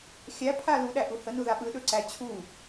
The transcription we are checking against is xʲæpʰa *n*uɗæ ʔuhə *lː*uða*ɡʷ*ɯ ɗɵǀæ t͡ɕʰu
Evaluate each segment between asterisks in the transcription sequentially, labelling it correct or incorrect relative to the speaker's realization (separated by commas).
incorrect, incorrect, incorrect